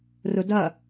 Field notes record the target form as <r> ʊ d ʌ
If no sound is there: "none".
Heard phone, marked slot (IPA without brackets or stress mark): r